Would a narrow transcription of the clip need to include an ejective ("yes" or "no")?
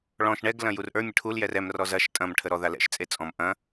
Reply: yes